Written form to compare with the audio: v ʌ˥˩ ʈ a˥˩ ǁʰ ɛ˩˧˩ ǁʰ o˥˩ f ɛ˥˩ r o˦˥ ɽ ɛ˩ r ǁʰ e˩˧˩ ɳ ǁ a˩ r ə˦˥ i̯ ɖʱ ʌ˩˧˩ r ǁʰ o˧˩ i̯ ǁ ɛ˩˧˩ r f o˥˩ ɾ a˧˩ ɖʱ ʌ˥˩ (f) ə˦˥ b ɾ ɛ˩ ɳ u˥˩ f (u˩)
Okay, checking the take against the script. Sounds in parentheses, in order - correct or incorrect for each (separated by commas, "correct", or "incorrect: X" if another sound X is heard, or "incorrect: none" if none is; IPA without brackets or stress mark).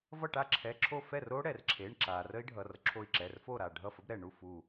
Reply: correct, incorrect: u˧˩